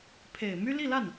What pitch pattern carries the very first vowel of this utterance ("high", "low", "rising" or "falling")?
low